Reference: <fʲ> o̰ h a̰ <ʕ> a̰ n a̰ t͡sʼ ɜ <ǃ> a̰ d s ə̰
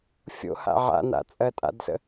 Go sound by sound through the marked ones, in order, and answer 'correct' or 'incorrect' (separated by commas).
correct, correct, incorrect